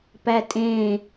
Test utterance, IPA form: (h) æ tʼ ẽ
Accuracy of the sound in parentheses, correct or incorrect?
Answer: incorrect